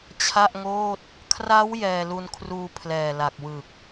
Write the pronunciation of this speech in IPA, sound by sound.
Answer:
t͡ɕʰ a˥˩ ʔ ŋ oː˥˩ t̚ | kʰ r a˦˥ w j ɛː˧ l u˧ n kʰ r uː˧ pʰ l ɛː˨˩ l a˨˩ k̚ w ɯ˨˩ k̚

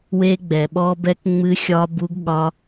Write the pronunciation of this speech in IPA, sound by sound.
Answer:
w e˦˥ ɡ͡b ɛ˩ ɓ ɔ˦˥ b ɛ˦˥ k ŋ͡m ɨ˦˥ xʲ ɒ˦˥ b u˦˥ ɡ ɠ ɒ˦˥

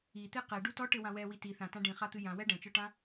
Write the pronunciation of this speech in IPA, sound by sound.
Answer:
i t̪ e q ɛ ɖ u t ɔ ʈ ɘ w ã w ɛ w i t i θ ã t ã ɖ ĩ χ a t̪ ɨ j ã w ɛ ɖ ɐ̃ t͡ʃ ɔ ʈ ã

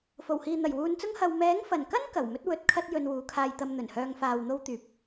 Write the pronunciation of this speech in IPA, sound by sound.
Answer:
f o˨˩ w h iː˨ n̪ ɐ˨˩ j w uː˨˧ n t͡s ʊ˥ ŋ h ɐ˧ w m ɛː˨˥ ŋ f ɐ˨˩ n k ɐ˥ n k ɐ˨˩ w m ɵ˥ t̚ w ɵ˨˥ t̚ kʰ ɐ˥ t̚ j ɵ˧ n w uː˨˥ kʰ aː˧ j t̪ ɐ˧ m n̪ ɵ˨˩ n h œː˧ ŋ f aː˨ w n̪ o˥ w t̪ yː˧ p̚

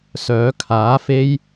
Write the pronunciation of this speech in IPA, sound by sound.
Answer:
s œː˨˥ kʰ aː˨˥ f e˥ j

